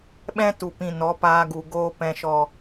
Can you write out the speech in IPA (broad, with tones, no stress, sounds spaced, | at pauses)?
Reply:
ɓ ɛ̃˦ t u˨ p ĩ˨ n ɔ˨˦ p aː˧ ɡ u˨ ɡ oː˧ p ɛ̃˨ ʃ ɔ˨